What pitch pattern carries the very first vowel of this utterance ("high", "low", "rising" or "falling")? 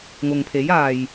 low